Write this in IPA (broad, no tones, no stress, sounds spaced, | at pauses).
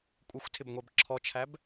kʷʼ ɪ xʷ tʰ ɪ b ŋʷ ɛ b ǁʰ ɔ t͡ʃʰ æ b